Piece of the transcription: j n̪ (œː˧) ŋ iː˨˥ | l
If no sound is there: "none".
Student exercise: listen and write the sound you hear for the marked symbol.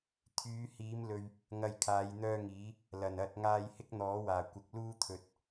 œː˥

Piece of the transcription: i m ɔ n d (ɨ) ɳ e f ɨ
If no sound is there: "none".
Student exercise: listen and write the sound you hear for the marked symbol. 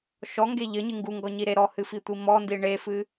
i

